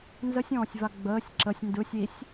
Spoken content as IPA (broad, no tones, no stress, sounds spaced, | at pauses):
n z ə sʲ ɔ̃ː sʲ v a ɡ͡b əː sʲ ǁ ə sʲ n d ɯ sʲ i sʲ